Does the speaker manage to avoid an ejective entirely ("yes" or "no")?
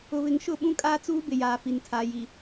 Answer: no